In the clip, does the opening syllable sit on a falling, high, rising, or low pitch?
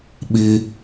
high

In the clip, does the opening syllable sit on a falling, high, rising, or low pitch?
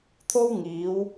high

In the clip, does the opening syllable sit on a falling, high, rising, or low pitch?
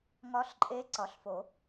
rising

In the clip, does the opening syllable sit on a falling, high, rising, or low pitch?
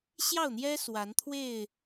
falling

